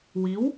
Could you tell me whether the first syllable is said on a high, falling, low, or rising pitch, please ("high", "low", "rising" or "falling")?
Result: rising